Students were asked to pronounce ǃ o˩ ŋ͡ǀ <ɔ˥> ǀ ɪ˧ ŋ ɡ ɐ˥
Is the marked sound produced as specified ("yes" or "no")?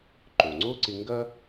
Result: no